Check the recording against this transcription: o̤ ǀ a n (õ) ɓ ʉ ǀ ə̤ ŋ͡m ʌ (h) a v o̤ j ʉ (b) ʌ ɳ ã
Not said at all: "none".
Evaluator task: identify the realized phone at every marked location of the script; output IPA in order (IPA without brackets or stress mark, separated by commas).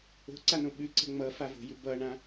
õ, f, b